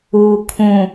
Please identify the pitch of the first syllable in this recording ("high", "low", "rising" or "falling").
low